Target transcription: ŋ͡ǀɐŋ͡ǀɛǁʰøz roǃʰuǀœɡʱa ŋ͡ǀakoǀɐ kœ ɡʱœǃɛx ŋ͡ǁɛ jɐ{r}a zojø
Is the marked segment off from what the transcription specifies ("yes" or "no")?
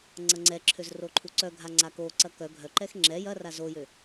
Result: no